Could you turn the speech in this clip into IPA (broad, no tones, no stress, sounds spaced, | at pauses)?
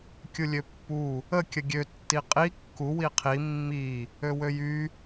kʲ u lʲ ø pː u | ə kʲ ə ɡʲ ø tː i qʼ i kː u w i qʰ i mː i | ø w ø j y